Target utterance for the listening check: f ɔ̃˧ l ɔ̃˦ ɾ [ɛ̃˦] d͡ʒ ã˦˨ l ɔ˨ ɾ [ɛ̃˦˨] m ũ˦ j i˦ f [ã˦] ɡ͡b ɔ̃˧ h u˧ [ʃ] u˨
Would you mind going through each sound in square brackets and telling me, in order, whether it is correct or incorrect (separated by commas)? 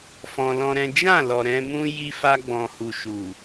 correct, incorrect, incorrect, correct